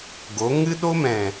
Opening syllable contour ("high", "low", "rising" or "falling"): rising